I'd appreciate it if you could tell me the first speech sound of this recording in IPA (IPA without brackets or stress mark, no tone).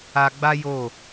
a